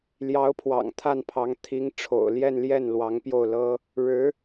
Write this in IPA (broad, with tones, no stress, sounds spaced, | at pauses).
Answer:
l j ɑ˧˥ ʊ̯ pʰ w ɑ̰˨˩ ŋ t̪ʰ a˥˩ n pʰ ɑ˧˥ ŋ t̪ʰ i˧˥ ŋ ʈ͡ʂʰ o̰˨˩ ʊ̯ l j ɛ˥˧ n l j ɛ˥˩ n l w ɑ˧˥ ŋ p j o˥˩ ʊ̯ l ɤ˥ | ɻ ɻ̩˧˥